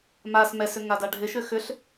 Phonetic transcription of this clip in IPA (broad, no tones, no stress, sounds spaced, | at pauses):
m a s m ɛ s ʏ ŋ a d a ɖʱ ɪ ʃ ʏ x ʏ ɬ